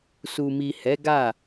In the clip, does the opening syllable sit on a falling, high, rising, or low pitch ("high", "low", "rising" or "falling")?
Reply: low